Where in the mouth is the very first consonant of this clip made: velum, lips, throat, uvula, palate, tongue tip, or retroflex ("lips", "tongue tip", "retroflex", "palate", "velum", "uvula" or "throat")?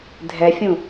tongue tip